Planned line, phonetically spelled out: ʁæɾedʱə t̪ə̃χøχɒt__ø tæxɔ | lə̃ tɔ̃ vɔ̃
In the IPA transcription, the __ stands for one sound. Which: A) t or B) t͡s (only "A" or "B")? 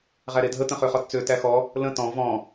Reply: B